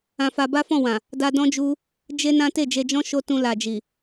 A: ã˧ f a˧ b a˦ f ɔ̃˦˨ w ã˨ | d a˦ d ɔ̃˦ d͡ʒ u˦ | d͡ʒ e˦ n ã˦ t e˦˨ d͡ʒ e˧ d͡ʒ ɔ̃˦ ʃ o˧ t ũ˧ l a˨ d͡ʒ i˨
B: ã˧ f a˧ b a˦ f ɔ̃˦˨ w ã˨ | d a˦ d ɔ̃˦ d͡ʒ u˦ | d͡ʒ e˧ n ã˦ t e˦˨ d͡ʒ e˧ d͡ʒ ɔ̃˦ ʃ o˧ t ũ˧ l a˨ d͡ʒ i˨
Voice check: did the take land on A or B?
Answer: A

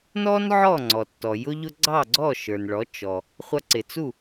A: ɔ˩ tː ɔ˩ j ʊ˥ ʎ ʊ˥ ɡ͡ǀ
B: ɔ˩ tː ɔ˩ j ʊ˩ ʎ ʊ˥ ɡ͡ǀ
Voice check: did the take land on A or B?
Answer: A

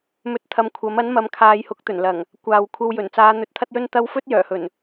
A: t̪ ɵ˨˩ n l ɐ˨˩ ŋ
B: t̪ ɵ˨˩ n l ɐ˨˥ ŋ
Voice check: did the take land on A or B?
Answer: A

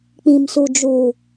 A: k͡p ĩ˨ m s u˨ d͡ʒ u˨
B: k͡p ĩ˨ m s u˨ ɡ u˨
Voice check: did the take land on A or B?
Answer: A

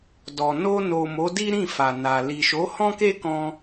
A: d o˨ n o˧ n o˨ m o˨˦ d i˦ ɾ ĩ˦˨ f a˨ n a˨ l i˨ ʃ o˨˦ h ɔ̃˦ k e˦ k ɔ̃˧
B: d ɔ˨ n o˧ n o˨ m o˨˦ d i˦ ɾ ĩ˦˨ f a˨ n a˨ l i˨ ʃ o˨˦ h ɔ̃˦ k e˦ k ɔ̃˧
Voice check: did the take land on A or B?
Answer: B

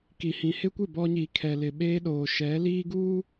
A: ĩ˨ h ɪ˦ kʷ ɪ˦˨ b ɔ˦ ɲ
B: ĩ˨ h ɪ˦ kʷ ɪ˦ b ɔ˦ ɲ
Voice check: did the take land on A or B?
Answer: A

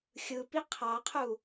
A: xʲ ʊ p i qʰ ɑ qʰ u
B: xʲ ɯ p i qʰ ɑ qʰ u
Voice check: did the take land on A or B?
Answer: B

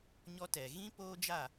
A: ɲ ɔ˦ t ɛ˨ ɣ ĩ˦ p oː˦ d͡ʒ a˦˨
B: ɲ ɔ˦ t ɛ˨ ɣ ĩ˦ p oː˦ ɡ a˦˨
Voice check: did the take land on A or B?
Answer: A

